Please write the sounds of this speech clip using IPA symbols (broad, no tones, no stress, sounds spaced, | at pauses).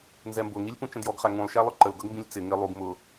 n z ɛ m b ʊ ŋ i lʲ p ũ t͡ʃ ə̃ d j ɔ ɡ χ æ ŋ ũ lˠ ʃ æ lˠ ʊ ǃ ə l ɡ ʌ ɡ m b ĩ lʲ t͡s ɪ ŋ ɪ lˠ u ɡ m ʊ